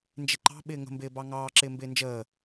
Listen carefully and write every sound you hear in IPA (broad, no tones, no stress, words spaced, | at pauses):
nd͡ʒɪǃɑ̤ ɓɪːŋə̤mbɪːbɑ ŋɑːǁɪːmbɪː nd͡ʒəː